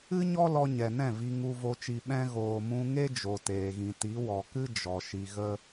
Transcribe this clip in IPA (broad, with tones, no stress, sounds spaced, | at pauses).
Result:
ɨ˦ ɲ ɔ˦ l ɔ˧ ɲ ɛ˨ n ɛ̃˦˨ v i˨ ŋ u˨ v o˨ t͡ʃ i˨ ɓ ɛ̃˧ ɣ oː˨ m ũ˧ ŋ e˦ d͡ʒ o˨ t eː˨ ɣ ĩ˨ t i˨˦ w ɔ˨ k ɨ˦ d͡ʒ ɔ˨ ʃ i˧ ɣ ə˦